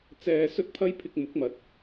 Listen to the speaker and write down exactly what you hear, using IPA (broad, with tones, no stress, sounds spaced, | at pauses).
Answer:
t͡s ɛː˧ s ɵ˥ t̚ pʰ ɐ˥ j pʰ ɪ˧ k̚ m ʊ˨˥ k̚ m ɐ˨˥ t̚